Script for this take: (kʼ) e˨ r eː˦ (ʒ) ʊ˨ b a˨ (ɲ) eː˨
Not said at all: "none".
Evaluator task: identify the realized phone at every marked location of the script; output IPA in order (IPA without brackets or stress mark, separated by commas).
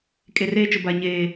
kʼ, t͡ʃ, ɲ